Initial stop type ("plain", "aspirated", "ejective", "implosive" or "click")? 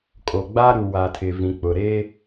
ejective